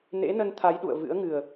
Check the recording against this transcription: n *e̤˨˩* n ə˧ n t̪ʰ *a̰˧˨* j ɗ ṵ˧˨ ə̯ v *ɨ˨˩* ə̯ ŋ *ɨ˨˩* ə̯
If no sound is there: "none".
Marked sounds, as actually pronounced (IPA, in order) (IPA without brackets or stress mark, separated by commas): ḛ˧˥, a˨˦, ɨ̰˧˥, ɨ˨˩